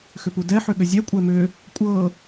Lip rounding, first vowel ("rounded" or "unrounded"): rounded